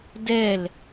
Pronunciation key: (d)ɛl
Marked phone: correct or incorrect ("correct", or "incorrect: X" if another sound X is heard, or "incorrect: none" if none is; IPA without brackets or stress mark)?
correct